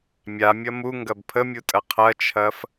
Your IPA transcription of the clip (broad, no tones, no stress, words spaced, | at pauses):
mʲamʲɐ muŋɡɐb pʰəmʲutʼɐ qʰɐt͡ʃʰɐf